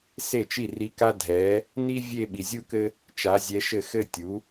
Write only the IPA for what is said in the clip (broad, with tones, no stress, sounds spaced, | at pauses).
s e˥˩ t͡ʃ i˥˩ r i˧˥ k a˥ dʱ ɛ˩˥ | n i˥ vʲ e˥˧ ɓ i˨ zʲ u˥ k ɘ˥ | t͡ʃ a˩˥ zʲ ɛ˧˥ ʃ ɘ˥˩ x ɘ˥˧ tʲ u˩˥